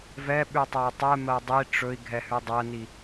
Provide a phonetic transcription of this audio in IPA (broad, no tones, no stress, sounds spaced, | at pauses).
v ɛ ɓ ʉ tˤ ɜ y̯ tˤ ɛ m ɜ dˤ i ʈ͡ʂ ɵ i̯ ɡʱ ɛ h ʉ dˤ ɜ n i